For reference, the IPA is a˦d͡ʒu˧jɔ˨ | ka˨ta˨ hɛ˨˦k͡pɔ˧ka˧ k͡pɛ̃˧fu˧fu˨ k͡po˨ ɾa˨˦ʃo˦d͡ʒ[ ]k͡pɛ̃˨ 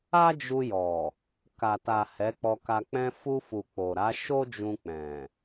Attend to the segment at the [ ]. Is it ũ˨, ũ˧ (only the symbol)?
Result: ũ˧